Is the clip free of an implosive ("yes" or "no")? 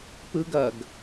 yes